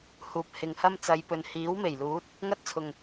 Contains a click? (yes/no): no